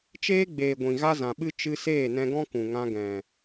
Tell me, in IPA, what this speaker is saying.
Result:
t͡ʃ eː˦ ɡ͡b eː˨ ɡʷ ĩ˨ ɣ a˦ z ã˨ ɓ ɨ˦ t͡ʃ ɨ˧ s eː˦˨ n ɛ̃˧ ɡ ɔ̃˦ k ũ˨ ŋ ã˧ ɡ ɛ̃˨

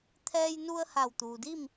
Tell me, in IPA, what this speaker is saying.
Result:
t̪ʰ ɛː˧ j n u˧ ə̯ h a˧˩ w t̪ uː˩ d i˥˨ m

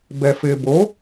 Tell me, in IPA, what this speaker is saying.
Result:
b ɛ f ɪː b o

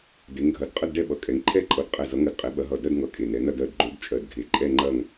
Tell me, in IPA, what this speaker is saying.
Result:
d e˨˦ ŋ ɡʱ ɐ˨˦ d qʼ ə˥˧ d ɖ ɛ˥˧ ɓ ʌ˨˦ kʼ ɛ˨˦ ŋ ǃʰ ɛ˥˧ ǃʼ ʌ˧˩ d qʼ ɛ˧˩ z ʌ˨˦ ŋ ɜ˧˩ d qʼ e˨˦ ɓ ɐ˨˦ ɦ ʌ˧˩ d ɜ˥˧ d ŋ ʌ˧˩ kʼ e˧˩ n ɛ˨˦ n ɐ˥˧ d ɜ˧˩ d ɡ͡ǃ o˨˦ d t͡ʃʼ ɜ˧˩ d ɡʱ e˨˦ ǃʼ ɛ˥˧ ŋ͡ǃ ɐ˥˧ ŋ

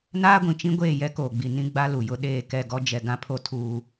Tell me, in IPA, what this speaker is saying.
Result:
n aː˦ ɡʷ ĩ˨ t͡ʃ ĩ˦ ɡʷ eː˦˨ j ɛ˦ k oː˨ ɡ͡b i˨ n ĩ˦ ɡ͡b a˦ l u˨ j ʊ˦ ɗ eː˦˨ k ɛ˦˨ ɡ ɔ˦ d͡ʒ ɛ˨ ɡ ã˦ pʰ o˦ tʰ uː˦

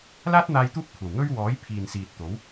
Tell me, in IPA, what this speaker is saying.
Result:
l aː˥ t̚ n̪ aː˧ j t̪ uː˥ p̚ kʷʰ ɐ˨˩ w ŋ ɵ˥ ɥ w ɔː˨˥ j pʰ iː˨ n s iː˨ t̚ t̪ o˨˥ w

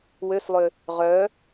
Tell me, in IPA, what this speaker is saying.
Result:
w ø s lˠ ø | ʁ œ

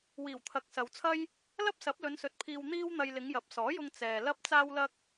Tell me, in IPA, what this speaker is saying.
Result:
w iː˨˩ w t̪ʰ ɐ˨ k̚ s ɐ˨ w t͡sʰ ɐ˥ j | l ɐ˥ p̚ s ɐ˨˥ p̚ l ɵ˨˧ n s ɵ˨ t̚ pʰ iː˧ w n̪ iː˥ w n̪ ɐ˧ j l ɪ˨˧ ŋ j ɐ˨˥ p̚ s ɔː˨˥ j ʊ˧ ŋ t͡s ɛː˨ l ɐ˥ p̚ t͡s aː˥ w l ɐ˥ k̚

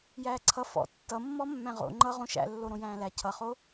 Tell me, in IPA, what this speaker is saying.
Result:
j æː ǀʰ ʌ f ɔ̰ tː ʌ mː ɔ mː æ̃ ʁ o̰ ŋ͡ǃ ʌ ʁ õ ʃ æ̰ lː o ɾ õ j æ̃ː l æ cʰ ʌ χ o

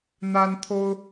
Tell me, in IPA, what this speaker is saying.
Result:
n̪ a˥ n t̪ʰ o˥ ʊ̯

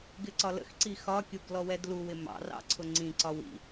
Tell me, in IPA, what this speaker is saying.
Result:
ɡ ɪ ǀ ɒ l ə̰ x ǀ i x ɒ kʲ u ɡ l ɔ w ɛ d l u w ɪ m ɑ̰ r ɑ̰ ǀʰ ʊ ŋ͡ǀ ĩ ǀ ɒ w ḭ

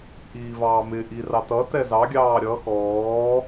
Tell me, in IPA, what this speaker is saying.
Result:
ʔ iː v ɑː m ɪ ʔ i r ɑ t ʌ t ɛ z ɑ ɡʲ ɑː ɾʲ ʌ x ɔː

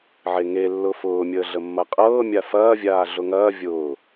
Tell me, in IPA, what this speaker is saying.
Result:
ʕ e ŋ e lː ʊ f ʊː mʲ əː ɮ ə mː ɐ qʼ ɤː mʲ a f ɐː vʲ aː ɮ ʊ ŋ ɐː vʲ ʊː

